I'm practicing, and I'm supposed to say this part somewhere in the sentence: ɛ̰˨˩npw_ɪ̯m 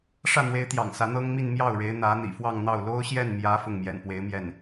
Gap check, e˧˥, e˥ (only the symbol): e˧˥